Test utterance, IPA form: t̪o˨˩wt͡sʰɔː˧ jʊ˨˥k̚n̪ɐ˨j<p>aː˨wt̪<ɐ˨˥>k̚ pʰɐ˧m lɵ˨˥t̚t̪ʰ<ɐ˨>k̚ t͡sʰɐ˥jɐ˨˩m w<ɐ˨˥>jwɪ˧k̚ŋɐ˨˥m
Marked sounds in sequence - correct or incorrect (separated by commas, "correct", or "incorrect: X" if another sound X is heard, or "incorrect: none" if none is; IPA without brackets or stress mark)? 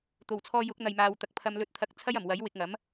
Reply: incorrect: m, correct, correct, correct